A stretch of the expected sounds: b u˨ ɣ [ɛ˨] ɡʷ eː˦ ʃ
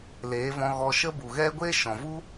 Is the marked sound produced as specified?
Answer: no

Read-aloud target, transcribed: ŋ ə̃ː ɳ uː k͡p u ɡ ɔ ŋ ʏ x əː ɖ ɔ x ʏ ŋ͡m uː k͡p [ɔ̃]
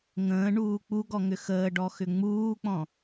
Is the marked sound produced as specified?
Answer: yes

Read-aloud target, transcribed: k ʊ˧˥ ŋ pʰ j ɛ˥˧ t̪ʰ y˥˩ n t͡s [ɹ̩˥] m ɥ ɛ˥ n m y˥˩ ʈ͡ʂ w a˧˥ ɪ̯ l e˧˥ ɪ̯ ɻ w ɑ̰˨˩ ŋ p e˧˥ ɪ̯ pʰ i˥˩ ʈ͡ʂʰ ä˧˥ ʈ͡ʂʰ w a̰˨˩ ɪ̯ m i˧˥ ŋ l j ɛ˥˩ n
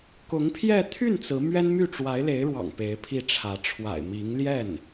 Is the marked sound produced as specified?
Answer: no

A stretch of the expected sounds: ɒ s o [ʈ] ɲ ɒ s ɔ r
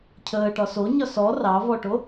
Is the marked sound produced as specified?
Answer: no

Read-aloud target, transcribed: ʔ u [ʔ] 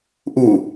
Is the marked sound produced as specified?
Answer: no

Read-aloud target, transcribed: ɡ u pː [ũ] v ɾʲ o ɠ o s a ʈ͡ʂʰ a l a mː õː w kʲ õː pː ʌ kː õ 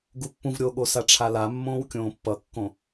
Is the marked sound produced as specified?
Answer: yes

